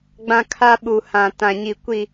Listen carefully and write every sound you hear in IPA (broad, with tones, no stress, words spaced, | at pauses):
ɡ͡bã˦ kʰa˦ɓu˨hã˨ tã˨ɲi˨ kʷi˨